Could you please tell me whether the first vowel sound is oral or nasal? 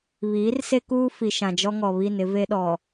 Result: oral